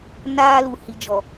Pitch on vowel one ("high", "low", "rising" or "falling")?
high